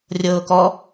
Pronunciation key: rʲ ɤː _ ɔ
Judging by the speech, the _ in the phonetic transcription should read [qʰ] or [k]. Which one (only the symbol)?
k